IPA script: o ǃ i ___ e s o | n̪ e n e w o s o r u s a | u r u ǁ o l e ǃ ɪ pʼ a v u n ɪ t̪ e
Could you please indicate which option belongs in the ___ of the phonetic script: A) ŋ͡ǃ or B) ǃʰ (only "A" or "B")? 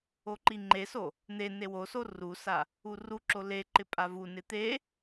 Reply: A